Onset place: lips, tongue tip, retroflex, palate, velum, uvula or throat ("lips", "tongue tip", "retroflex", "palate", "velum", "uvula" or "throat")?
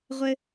uvula